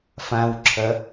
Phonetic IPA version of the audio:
f ã w ǁʰ ɐ

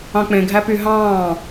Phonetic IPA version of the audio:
ɑ̃ k͡p ẽ ɡʱ æ p y ɦ ɑ̃ː

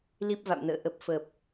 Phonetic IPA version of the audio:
l i˦˥ p̚ v a̰˧˨ m n ə̰ː˧˨ ʔ ə˨˩ p̚ f əː˨˩ p̚

